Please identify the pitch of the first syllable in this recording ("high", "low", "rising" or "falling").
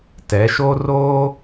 rising